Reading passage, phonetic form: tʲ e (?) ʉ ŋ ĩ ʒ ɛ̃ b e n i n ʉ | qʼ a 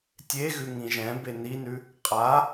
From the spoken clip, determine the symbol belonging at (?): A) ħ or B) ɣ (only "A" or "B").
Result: B